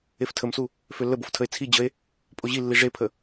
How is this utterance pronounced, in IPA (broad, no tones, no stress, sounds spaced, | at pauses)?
e f tʰ ə m s u | f ø lː ə b o f tʰ ə e̯ t͡sʰ i d͡ʑ ə e̯ | pʼ o ʑ i lː i ʐ e pʰ ə